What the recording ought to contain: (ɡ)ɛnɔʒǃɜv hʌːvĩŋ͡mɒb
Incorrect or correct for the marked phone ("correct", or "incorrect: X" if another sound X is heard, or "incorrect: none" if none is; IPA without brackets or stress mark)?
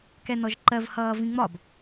incorrect: k